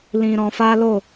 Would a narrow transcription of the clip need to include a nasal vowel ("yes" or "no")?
yes